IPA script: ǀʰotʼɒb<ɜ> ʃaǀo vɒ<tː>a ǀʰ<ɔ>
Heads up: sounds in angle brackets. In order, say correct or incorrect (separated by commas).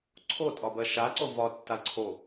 correct, correct, incorrect